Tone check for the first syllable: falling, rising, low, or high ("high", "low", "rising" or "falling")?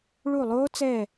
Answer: falling